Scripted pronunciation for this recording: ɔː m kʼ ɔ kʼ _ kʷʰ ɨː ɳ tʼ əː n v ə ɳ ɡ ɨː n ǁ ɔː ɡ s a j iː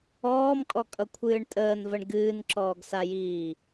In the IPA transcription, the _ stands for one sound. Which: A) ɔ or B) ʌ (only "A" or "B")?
B